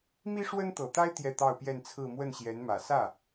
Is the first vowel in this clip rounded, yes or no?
no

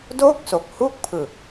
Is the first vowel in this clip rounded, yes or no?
yes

